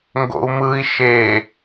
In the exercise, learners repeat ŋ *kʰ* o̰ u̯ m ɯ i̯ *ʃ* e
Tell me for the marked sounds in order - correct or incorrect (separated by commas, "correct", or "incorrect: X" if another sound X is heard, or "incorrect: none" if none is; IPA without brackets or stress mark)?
incorrect: ɡ, correct